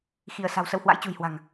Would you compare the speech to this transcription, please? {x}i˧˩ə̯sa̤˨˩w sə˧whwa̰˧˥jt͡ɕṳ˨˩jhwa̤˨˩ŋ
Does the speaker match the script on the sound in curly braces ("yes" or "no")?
yes